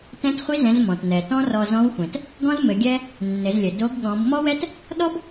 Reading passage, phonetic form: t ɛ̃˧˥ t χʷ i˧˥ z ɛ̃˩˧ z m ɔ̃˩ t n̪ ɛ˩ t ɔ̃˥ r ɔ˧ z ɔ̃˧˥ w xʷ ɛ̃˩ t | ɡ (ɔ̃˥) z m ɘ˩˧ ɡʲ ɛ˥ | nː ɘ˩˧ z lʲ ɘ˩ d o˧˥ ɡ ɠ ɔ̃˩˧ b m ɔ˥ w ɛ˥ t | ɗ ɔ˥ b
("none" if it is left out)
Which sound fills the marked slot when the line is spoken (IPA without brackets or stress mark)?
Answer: ɔ̃˥